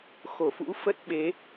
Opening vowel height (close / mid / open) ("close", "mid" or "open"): mid